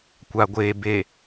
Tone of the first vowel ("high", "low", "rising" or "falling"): low